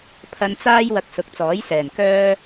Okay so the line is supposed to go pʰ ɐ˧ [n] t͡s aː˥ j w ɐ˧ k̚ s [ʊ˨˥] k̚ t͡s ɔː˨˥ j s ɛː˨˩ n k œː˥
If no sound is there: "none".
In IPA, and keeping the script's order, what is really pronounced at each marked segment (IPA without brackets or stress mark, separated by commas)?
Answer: n, ʊ˨˥